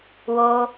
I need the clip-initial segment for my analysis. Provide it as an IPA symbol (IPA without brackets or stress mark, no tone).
w